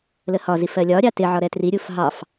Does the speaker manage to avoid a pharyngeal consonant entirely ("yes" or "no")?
no